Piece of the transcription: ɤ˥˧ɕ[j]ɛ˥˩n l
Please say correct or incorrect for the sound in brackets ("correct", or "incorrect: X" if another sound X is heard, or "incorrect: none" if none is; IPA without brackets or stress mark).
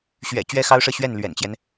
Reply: incorrect: ɥ